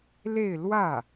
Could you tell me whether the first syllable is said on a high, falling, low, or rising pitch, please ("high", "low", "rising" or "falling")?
falling